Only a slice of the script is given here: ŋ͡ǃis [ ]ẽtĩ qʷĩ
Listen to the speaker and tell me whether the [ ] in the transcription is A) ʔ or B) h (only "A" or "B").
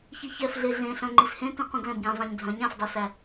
B